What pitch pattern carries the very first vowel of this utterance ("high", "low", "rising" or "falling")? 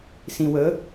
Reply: low